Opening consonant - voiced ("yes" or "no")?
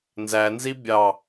yes